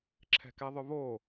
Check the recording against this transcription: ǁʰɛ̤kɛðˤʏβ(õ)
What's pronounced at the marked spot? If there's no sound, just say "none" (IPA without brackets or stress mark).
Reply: o